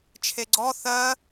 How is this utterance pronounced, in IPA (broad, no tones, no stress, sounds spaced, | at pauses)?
t͡ʃʰ e ɡ͡ǀ ɔ θ ɜ